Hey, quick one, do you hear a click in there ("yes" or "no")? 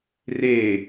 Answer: no